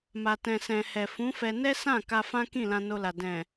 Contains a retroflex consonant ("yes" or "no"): no